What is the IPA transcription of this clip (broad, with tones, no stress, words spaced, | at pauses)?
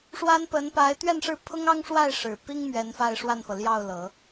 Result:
ʂwa˥npə˧˥n pa˧˥ɪ̯t̪ɥɛ˥˧nʂɻ̩˥˩ pʰʊ˥ŋɑ˥ŋʂwa˥˩ɪ̯ ʂɻ̩˨˩pi˥ŋ mɥɛ˧˥nfa˥˧ɪ̯ʂwa˥˩nfɤ˩ ljɑ˥˩ʊ̯lɤ˨˩˦